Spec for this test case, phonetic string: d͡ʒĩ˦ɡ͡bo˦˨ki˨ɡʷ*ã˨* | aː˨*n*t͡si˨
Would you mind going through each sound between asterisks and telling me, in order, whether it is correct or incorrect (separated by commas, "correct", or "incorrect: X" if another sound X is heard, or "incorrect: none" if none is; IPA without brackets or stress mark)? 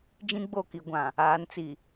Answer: correct, correct